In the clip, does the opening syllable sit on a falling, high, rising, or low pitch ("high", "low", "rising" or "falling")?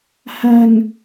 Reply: low